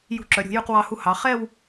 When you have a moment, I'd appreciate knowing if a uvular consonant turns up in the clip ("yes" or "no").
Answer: yes